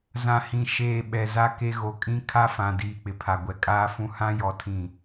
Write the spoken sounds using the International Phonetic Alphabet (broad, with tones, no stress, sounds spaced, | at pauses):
z ã˨ h ĩ˨ ʃ eː˨ ɓ ɛ˨ z a˦ k e˦ ɣ o˨ kʼ ĩ˦ kʰ a˦ f ã˨ d iː˨ k͡p ɪ˨ pʰ a˨ ɡʷ ɛ˨ kʼ aː˦ f ũ˦ h ã˦ j ɔ˦ tʰ ĩ˦˨